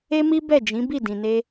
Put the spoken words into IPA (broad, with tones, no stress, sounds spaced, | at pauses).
e˦ m i˦ b ɛ˦˨ d͡ʒ ĩ˨˦ b i˦˨ d ĩ˨ n e˧